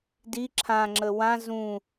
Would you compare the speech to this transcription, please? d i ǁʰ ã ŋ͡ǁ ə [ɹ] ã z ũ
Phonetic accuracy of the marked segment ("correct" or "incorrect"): incorrect